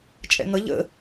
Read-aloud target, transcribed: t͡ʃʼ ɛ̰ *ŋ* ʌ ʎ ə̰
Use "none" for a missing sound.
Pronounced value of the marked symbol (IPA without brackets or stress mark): ŋ